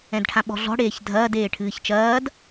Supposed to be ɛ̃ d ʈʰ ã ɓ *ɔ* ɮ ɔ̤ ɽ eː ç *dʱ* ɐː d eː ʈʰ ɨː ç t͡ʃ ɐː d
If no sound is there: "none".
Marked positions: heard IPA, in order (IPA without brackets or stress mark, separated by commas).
ɔ̤, dʱ